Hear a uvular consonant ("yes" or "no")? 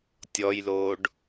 no